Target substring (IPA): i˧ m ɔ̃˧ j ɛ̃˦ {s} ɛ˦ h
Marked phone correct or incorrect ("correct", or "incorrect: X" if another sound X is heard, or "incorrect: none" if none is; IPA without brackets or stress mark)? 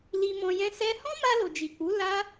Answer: correct